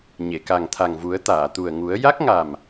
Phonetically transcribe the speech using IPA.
ɲ e˨˩˨ k a˨˩ ŋ t̪ʰ a˨˩ ŋ v u˨˩˦ ə̯ t̪ aː˨˩˨ t̪ u˨˩ ə̯ ŋ u˨˩˦ ə̯ j a˦˥ k̚ ŋ a˨˩ m

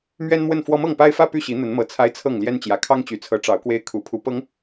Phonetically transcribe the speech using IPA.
m ɥ ɛ˦ n m w ə˥˨ n f w ɔ˦ m ɤ˥˨ ŋ p a˦ ɪ̯ f ä˦ p y˥˨ ɕ i˨˦ n̪ ə˨˦ n m ɤ˨˩ t͡sʰ a˦ ɪ̯ t͡sʰ ɤ˥˨ ŋ l j ɛ˦ n t͡ɕ j ä˨˩ kʰ ɑ˦ ŋ t͡ɕ y˨˩ t͡sʰ ɤ˨˦ ʈ͡ʂ ɑ˨˦ ʊ̯ k w e˦ ɪ̯ kʰ u˨˩ pʰ u˨˦ p ɤ˨˦ ŋ

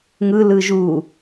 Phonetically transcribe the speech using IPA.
ŋ ɯ l ɯ ʒ u

